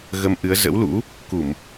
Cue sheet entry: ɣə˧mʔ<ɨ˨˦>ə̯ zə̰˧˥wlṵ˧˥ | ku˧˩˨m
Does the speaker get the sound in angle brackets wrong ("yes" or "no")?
no